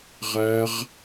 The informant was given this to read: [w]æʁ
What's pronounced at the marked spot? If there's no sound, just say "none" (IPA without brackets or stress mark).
ʁ